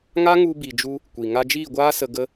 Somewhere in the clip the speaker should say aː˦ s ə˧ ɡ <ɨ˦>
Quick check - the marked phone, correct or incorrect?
incorrect: ə˦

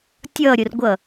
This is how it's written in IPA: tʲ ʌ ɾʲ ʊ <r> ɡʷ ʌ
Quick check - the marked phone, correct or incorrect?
correct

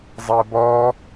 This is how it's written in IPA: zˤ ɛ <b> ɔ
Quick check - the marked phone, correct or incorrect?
correct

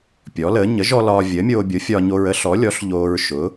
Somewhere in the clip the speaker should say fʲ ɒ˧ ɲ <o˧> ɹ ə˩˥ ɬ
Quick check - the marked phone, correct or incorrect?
correct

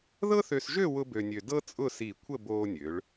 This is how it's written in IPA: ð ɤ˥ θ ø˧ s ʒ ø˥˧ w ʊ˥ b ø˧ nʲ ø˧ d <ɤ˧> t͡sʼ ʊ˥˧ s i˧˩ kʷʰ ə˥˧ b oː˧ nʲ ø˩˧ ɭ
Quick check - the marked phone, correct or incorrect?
incorrect: ɤ˥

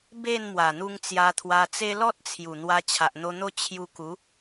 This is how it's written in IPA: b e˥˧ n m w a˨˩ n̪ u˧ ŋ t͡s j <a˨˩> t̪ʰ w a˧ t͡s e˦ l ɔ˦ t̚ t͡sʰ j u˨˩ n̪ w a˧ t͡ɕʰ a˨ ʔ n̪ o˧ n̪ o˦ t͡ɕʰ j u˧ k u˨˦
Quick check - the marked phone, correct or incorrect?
incorrect: a˧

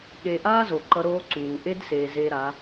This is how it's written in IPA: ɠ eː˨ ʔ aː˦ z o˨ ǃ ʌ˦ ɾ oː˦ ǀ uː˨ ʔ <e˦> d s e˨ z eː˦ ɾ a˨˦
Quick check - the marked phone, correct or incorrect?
correct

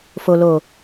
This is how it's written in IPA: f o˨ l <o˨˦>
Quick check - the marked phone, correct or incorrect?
incorrect: o˨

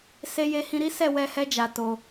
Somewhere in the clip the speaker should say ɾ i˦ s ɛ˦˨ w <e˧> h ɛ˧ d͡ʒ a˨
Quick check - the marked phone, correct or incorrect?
incorrect: ɛ˧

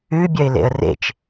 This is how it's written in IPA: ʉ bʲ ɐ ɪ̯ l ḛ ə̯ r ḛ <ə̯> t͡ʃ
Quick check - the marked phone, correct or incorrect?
incorrect: none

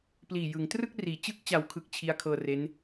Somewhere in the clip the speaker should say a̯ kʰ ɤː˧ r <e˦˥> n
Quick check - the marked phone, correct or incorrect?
correct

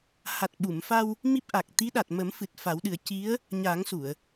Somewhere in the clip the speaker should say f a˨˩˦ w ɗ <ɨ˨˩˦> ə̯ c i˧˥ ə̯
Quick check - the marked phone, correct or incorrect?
correct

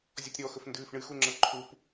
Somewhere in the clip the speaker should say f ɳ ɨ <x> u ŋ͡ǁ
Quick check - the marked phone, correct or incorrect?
correct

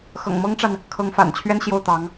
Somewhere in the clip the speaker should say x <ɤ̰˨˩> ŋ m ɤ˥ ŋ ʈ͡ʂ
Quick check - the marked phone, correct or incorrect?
correct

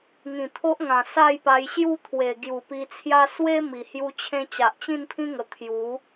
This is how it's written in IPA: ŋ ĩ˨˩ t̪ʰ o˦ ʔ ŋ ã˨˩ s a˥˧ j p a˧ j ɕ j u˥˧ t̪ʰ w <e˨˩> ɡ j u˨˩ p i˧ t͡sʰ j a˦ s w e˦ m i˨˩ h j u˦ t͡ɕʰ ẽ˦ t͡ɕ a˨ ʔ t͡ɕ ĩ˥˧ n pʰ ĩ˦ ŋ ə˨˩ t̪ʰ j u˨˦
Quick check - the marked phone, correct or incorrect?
correct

